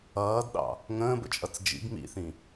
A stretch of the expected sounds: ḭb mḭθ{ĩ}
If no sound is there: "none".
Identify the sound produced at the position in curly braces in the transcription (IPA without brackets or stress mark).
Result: ĩ